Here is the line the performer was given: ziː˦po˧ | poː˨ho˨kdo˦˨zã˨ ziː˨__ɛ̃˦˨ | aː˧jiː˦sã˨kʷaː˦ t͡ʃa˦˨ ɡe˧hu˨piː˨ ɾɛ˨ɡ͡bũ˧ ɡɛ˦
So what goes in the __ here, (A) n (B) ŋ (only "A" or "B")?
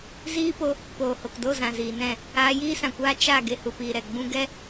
A